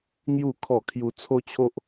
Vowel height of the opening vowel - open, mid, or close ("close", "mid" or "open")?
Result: close